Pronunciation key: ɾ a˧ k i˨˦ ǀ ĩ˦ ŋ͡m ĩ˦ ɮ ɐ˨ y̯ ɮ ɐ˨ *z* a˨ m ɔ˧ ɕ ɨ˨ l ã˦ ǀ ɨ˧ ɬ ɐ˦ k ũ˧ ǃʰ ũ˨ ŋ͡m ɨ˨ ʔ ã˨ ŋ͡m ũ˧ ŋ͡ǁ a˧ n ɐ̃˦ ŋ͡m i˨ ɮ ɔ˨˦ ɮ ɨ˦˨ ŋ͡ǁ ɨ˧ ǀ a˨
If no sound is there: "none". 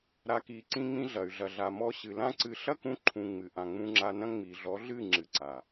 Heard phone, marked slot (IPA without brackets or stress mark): ɮ